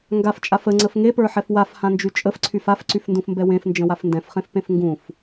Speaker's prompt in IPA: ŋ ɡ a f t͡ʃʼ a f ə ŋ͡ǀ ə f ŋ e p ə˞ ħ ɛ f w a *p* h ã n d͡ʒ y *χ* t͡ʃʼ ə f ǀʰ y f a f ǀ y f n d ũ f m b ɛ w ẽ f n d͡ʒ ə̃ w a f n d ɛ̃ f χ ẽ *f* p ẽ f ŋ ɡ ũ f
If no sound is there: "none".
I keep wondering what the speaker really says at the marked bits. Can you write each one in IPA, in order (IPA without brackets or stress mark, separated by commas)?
f, none, f